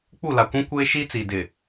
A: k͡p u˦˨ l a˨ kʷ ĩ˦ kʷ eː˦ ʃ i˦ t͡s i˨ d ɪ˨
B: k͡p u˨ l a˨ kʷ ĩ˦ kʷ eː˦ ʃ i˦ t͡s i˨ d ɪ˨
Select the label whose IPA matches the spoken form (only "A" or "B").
A